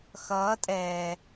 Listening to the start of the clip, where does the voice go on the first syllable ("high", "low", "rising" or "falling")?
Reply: rising